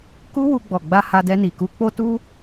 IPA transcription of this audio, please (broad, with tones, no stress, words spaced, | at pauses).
ku˦ wu˧ɡ͡bɔ˨ɡ͡ba˧ ha˧dɛ˧ni˨ ku˧k͡po˦tu˦